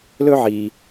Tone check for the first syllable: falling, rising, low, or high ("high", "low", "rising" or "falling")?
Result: high